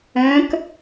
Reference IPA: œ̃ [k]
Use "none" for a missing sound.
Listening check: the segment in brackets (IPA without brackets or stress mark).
k